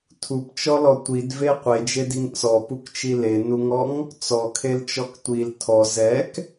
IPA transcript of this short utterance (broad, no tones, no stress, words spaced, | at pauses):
tʰupt͡ʃɔlɔ tʷidve qʷed͡ʒediŋ t͡sɔpukt͡ʃi lenuŋɔŋ | t͡sɔkʰelt͡ʃɔk tʷil tʰɔ zɛk